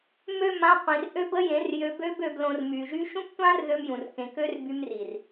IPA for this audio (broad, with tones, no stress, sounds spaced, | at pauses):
m ø˦˨ m ã˧ qʷ ĩ˨ r ʔ ø˦ b ə˦ j ẽ˨˦ r j ø˧ b ø˦ b ø˧ b l õ˧ r m y˨ ʒ y˦ ʃ ũ˦ p tʷ ã˦ r ð ø˦ m j ũ˨ r k ẽ˨ k ø˦ r b y˦ m r i˨ r